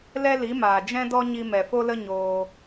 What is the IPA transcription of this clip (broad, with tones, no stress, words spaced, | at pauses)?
lɛ˦li˨˦maː˨ d͡ʒɛ̃˦dɔ˦ ɲi˧mɛ˨fo˦lə˦ ɲoː˧